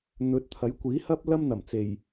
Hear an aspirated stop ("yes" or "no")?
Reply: yes